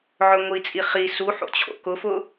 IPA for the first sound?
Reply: ʕ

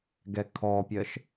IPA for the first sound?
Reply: ɡ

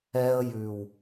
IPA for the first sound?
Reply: ɛ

